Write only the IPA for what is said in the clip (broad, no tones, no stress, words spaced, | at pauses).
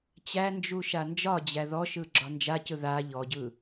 t͡ɕænd͡ʒu ʃand͡ʒɒd͡ʑæ ðɔʃɯ ɡ͡ǁɒnd͡ʒacɯ ða ʎɔɟɯ